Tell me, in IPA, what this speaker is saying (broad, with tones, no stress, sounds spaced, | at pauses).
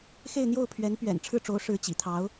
x e˥˧ ɪ̯ n̪ j o˥˩ ʊ̯ pʰ ɥ ɛ˧˥ n p ɥ ɛ̰˨˩ n ʈ͡ʂʰ ɻ̩˥˩ ʈ͡ʂ o˧˥ ʊ̯ ʂ ɻ̩˧˥ t͡ɕ ḭ˨˩ t̪ʰ ɑ˧˥ ʊ̯